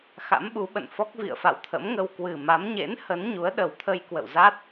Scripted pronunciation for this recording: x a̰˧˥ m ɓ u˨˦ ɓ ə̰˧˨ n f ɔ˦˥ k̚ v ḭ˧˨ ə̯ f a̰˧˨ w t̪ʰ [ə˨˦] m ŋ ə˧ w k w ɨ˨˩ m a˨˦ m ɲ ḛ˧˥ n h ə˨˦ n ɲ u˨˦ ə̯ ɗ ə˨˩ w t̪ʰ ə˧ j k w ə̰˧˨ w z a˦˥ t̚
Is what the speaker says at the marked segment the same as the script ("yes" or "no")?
no